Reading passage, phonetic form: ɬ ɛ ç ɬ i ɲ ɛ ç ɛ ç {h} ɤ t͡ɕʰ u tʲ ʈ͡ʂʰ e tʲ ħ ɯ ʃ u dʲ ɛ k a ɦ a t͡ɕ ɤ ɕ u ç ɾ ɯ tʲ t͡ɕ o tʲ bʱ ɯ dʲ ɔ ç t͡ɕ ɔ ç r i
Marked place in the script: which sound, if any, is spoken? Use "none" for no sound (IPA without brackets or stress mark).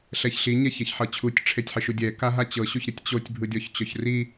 ħ